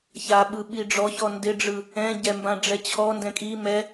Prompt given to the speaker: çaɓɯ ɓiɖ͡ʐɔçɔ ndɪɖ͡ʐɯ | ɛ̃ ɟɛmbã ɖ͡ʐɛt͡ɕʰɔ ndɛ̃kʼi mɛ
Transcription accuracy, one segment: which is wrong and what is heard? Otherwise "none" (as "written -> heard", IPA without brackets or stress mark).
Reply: none